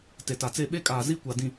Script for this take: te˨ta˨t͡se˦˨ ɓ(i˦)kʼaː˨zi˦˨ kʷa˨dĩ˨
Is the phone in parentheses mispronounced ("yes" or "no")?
yes